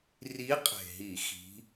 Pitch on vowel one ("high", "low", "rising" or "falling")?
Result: rising